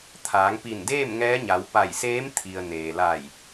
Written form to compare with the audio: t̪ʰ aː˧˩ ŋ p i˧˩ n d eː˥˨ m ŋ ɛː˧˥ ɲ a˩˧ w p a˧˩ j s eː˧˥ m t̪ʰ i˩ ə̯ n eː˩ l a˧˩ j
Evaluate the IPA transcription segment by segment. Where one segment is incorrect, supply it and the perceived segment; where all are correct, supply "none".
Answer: aː˧˩ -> aː˩˧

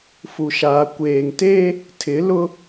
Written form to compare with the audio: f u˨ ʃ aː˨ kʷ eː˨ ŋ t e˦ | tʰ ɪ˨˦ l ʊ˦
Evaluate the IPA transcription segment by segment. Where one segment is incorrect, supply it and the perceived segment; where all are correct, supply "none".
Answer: none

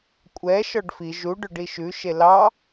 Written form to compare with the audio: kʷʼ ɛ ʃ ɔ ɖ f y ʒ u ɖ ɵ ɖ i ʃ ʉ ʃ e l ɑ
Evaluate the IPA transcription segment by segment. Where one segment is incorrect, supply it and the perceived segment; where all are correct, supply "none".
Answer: y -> i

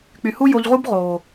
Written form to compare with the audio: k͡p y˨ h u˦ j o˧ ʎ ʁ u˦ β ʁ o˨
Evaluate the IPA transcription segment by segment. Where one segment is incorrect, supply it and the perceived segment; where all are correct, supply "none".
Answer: β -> b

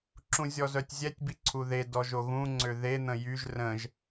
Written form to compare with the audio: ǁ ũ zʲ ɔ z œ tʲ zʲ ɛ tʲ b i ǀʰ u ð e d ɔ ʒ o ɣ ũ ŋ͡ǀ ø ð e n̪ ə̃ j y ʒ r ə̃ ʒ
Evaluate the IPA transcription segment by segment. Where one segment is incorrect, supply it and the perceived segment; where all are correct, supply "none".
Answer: none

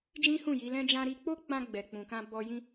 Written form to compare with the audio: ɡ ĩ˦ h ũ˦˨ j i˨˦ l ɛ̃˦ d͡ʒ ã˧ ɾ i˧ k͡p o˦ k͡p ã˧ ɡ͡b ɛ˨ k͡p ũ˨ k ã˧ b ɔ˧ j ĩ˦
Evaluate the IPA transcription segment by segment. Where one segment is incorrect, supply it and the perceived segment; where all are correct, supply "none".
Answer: ɡ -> d͡ʒ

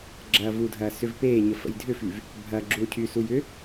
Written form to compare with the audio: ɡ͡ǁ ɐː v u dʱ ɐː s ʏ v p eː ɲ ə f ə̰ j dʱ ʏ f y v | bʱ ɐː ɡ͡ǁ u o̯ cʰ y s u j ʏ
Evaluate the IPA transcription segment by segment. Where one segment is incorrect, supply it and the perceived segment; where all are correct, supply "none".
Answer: none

